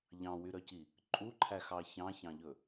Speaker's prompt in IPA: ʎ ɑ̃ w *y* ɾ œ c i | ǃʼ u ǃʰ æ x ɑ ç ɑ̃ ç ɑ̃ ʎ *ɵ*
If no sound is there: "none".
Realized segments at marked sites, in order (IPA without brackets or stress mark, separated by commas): y, ɵ